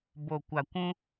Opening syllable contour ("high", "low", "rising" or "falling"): low